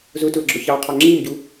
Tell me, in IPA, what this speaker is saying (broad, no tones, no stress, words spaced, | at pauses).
zʊ tʊə̯ɡ͡ǁʊçɑqʰɑ ŋ͡ǁimɟu